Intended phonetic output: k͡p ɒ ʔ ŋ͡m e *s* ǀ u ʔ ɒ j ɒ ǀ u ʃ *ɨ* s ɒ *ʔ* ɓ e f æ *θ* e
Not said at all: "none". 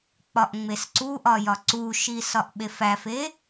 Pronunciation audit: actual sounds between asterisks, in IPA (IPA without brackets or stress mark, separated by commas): s, i, ʔ, f